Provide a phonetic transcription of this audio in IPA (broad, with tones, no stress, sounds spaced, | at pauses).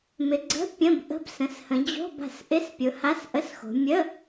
m ɪ˨˦ ɡ͡ǀ ə̤˧˥˧ pʲ ə̃˧˥˧ b ʔ ə̤˧˥˧ b s ə̃˨˦ s h ə̃˨˦ d͡ʑ o̤˧˥˧ b a̤˨˦ s ʔ ɪ˧˥˧ s pʲ ʊ˨˦ h a˧˥˧ s ʔ ə˧˥˧ s x o̤˨˦ mʲ ə˧˥˧